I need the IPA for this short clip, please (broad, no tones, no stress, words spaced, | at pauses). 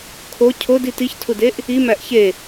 kʰo cʰodi tiçtʰudeʔ | imæʔ çe